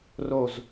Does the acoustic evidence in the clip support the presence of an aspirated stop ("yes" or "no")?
no